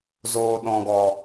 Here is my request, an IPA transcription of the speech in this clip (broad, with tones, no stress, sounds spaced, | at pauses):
z oː˨ ɗ ɔ̃˨ ɡ ɔ˨